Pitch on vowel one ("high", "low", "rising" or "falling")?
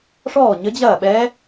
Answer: falling